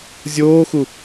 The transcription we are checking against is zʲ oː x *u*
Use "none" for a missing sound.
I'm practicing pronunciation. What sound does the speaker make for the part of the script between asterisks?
u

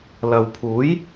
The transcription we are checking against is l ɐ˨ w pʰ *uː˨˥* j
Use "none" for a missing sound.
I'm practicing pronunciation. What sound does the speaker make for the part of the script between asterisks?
uː˨˥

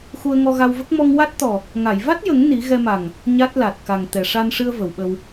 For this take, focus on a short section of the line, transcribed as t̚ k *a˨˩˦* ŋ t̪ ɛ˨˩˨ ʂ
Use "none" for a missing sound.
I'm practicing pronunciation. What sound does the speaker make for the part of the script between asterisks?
a˨˩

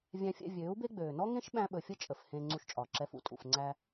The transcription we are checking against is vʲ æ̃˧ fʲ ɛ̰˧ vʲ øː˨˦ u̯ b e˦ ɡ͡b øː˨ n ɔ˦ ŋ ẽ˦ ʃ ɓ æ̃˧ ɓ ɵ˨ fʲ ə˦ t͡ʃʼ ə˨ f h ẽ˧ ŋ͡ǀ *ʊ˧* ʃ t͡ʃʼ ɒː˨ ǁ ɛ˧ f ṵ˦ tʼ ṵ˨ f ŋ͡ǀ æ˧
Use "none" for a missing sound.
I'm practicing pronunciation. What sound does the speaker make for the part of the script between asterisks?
u˧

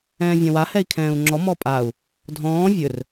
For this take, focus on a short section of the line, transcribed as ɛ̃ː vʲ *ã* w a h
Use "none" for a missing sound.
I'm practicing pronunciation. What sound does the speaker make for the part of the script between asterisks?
ã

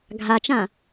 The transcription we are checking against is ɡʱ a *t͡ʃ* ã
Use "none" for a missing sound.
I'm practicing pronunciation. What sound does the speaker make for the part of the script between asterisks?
t͡ʃ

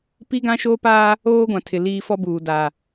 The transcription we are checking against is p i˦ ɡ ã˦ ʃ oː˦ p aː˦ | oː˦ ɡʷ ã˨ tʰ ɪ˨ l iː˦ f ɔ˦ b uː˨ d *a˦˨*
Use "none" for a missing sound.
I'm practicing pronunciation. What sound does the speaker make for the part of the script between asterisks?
a˨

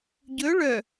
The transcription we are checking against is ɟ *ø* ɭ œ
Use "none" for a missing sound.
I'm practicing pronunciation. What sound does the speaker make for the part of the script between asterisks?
ɵ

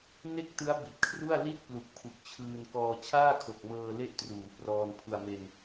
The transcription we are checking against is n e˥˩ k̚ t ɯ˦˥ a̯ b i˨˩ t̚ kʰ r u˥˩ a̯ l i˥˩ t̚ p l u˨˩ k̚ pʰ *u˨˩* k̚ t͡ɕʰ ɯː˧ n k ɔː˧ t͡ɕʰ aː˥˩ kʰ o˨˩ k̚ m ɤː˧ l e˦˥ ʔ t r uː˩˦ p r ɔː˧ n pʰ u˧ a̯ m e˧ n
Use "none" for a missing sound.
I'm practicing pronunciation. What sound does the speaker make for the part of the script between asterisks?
u˨˩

